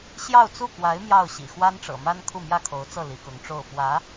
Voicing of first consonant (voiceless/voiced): voiceless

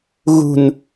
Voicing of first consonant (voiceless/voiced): voiced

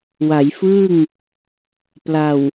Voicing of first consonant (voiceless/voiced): voiced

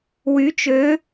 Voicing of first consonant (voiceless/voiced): voiced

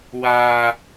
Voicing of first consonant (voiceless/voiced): voiced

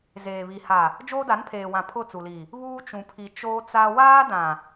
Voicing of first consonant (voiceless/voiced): voiced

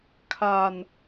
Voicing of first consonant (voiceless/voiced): voiceless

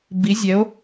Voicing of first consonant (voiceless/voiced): voiced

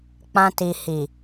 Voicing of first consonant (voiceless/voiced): voiceless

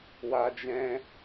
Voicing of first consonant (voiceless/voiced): voiced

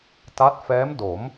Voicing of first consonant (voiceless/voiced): voiceless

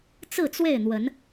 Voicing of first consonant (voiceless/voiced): voiceless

